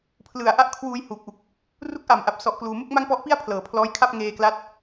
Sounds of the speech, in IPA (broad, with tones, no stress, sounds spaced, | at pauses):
pʰ l ɯ˨˩ a̯ ʔ a˥˩ ʔ kʰ w uː˧ j h uː˨˩ k̚ ʔ u˨˩ k̚ | r u˦˥ k̚ ʔ a˨˩ m ʔ a˨˩ p̚ s ɔ˦˥ ʔ k l uː˧ m u˥˩ k̚ m a˥˩ ŋ p ɔ˦˥ ʔ p i˥˩ a̯ pʰ l ɤː˨˩ pʰ l ɔː˦˥ j kʰ a˥˩ p̚ ŋ eː˧ k l a˦˥ t̚